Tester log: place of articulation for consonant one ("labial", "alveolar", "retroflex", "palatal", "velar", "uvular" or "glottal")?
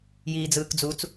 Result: palatal